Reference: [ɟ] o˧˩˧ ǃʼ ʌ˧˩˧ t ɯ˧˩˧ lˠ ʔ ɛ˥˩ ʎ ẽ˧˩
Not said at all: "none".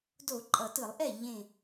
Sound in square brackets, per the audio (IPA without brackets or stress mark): d